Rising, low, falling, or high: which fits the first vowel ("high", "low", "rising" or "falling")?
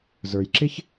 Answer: low